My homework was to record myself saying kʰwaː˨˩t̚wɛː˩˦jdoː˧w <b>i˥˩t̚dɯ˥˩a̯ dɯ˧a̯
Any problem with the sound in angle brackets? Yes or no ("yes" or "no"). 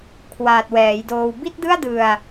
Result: no